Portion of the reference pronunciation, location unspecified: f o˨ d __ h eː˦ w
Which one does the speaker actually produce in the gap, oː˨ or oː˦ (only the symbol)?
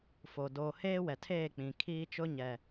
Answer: oː˨